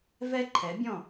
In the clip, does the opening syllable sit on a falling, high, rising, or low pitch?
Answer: high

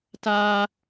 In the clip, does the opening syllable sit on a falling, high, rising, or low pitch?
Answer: high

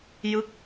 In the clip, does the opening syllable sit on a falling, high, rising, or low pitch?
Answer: falling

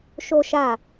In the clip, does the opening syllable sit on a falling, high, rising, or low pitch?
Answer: high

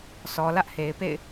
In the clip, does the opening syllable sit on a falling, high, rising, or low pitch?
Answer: low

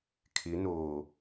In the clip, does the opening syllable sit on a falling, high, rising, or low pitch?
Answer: rising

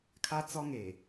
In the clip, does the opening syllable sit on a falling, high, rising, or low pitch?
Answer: high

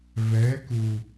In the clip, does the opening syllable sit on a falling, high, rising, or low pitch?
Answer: rising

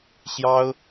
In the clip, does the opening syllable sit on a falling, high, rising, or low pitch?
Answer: high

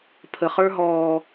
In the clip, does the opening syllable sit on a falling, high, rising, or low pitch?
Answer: low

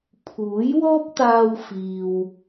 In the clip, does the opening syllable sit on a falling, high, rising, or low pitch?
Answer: rising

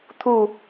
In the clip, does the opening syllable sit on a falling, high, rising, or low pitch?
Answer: falling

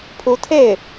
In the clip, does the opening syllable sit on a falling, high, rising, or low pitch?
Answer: rising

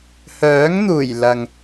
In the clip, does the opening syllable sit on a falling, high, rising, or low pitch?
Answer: rising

